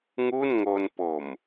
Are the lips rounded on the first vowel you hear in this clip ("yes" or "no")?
yes